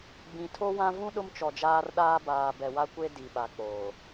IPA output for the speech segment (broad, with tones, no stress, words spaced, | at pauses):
ɡ͡bĩ˨tʰo˦wã˦ vũ˦ ɗʊ˦mt͡ʃɔ˨d͡ʒaː˦rɗaː˦ baː˨bɛ˨wa˦kʷe˦ di˨ɓa˨ k͡poː˨